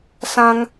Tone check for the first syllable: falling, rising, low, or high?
high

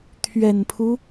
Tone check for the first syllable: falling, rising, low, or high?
low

